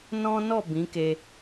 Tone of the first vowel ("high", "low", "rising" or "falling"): high